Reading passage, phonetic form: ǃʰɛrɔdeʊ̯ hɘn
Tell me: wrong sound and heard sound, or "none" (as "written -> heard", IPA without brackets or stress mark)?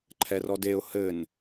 none